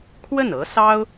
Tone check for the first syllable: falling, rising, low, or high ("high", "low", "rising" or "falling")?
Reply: falling